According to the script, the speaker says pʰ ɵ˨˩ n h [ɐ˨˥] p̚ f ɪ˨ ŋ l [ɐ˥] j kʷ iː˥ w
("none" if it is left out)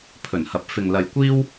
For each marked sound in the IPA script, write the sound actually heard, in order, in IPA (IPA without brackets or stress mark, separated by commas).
ɐ˨, ɐ˨